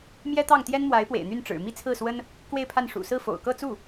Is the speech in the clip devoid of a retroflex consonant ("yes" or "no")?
no